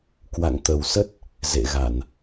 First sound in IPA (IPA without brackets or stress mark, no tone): k